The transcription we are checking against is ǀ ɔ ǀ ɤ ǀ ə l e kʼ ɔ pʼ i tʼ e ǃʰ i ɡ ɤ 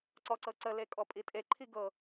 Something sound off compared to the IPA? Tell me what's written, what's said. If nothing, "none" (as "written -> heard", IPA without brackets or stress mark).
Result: none